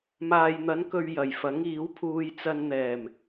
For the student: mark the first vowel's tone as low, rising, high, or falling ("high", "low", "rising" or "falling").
low